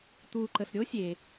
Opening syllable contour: low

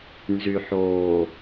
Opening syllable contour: low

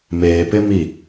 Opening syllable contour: low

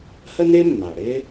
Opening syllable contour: high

